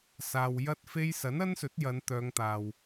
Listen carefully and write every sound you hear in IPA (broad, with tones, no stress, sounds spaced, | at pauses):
s aː˨ w j ɐ˥ t̚ f e˥ j s ɐ˨˥ n ɐ˥ n s ɵ˨˥ t̚ j ɐ˨˧ n t̪ œː˨˧ ŋ t̪ aː˨ w